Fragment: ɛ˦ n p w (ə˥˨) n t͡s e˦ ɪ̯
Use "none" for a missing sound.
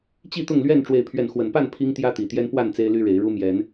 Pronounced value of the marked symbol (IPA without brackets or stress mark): a˥˨